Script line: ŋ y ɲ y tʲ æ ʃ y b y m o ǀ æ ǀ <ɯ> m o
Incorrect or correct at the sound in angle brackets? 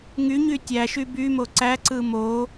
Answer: correct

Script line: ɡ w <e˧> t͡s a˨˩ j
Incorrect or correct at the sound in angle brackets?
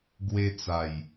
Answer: correct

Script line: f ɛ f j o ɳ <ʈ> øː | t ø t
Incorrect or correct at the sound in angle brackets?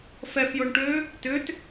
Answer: correct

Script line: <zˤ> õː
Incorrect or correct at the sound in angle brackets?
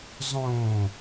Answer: correct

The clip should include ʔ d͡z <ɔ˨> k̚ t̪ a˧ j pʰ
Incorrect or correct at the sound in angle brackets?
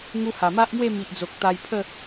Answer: incorrect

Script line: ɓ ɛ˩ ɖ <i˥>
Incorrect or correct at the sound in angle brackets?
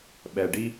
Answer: correct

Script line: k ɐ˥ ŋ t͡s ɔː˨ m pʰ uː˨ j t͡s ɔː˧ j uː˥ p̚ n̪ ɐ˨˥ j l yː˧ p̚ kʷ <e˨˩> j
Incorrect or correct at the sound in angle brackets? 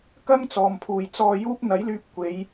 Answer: incorrect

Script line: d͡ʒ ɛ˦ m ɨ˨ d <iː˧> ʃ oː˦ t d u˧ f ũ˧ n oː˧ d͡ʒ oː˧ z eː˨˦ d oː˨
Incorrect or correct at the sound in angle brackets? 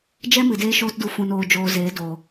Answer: incorrect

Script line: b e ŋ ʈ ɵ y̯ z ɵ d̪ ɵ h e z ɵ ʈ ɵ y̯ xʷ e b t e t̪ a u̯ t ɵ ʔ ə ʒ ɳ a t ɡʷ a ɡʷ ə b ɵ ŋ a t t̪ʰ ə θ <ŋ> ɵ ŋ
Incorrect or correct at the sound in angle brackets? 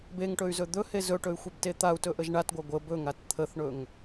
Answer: incorrect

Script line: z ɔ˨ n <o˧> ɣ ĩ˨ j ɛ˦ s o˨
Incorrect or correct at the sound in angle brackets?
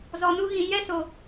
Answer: incorrect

